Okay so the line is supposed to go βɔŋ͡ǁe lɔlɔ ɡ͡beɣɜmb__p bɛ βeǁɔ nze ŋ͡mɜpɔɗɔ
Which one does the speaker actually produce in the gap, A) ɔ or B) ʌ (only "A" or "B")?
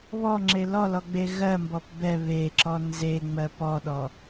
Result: A